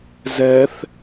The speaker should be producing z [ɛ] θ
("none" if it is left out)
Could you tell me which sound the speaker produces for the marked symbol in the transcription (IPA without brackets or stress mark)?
ɛ